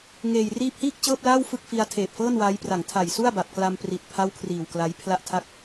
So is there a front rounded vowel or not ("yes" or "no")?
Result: no